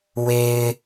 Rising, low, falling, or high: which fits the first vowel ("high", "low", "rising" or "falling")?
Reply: low